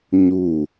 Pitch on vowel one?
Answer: falling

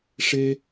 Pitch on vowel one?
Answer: high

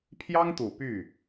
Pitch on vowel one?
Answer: high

